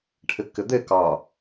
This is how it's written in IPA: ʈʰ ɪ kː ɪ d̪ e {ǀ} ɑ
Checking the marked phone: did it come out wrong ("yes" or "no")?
yes